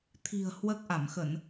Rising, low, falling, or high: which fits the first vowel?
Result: low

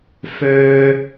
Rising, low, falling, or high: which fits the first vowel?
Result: high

